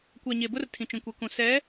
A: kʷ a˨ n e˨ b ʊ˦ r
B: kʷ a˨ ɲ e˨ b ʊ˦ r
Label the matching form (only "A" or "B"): B